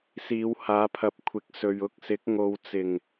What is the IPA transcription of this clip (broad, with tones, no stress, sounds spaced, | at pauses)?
s iː˨˧ w h aː˨˧ pʰ ɐ˨ p̚ kʷʰ ɪ˨˥ k̚ s ɵ˨ ɥ ʊ˧ k̚ s ɪ˨˥ k̚ ŋ o˨ w t͡s ɪ˨˩ ŋ